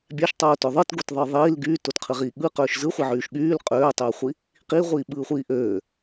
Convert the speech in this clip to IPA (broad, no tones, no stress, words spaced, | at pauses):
bʲæʃtˤoːtø ðˤɯtɡotðˤɯː ðˤiːl ɡyːtotqʰɯʁiː ɠɯqøːʃ zɯχʷiʕyːʃ ɠyːl qʼøːtˤøːχʷi | qiʁʷiːɓɯːχʷiː ʔøː